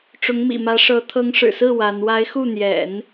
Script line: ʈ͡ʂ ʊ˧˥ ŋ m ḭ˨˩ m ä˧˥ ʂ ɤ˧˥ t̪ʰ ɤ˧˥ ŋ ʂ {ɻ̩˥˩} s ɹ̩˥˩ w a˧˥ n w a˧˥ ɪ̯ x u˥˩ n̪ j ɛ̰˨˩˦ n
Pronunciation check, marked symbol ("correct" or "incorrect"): incorrect